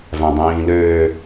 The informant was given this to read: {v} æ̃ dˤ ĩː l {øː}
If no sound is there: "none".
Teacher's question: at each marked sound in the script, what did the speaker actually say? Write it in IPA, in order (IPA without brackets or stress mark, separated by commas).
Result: v, øː